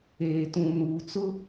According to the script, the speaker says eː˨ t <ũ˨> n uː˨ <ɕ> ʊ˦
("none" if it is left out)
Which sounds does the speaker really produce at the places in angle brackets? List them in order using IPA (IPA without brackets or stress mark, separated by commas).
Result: ũ˨, t͡s